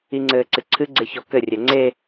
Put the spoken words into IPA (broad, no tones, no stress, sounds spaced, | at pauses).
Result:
i ŋ͡ǀ ɘː ǀ ɨ ǀʰ ɨ ɡ͡ǀ e ç ɔ k ɘ rʲ ɛ ŋ͡ǀ e